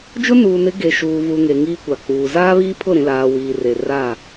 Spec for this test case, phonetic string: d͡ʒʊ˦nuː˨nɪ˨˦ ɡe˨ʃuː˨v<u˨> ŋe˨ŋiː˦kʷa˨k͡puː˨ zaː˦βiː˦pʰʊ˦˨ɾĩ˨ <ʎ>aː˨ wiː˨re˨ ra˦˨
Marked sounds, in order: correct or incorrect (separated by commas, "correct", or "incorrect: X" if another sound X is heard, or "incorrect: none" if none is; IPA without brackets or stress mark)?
correct, incorrect: l